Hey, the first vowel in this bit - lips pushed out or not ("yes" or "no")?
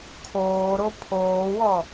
yes